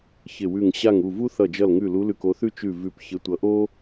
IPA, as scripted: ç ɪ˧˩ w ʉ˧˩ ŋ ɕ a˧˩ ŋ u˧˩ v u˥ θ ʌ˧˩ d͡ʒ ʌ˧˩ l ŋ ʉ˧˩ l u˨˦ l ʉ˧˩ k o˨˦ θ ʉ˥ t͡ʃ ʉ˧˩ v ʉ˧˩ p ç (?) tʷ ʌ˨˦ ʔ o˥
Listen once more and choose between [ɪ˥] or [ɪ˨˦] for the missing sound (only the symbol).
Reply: ɪ˨˦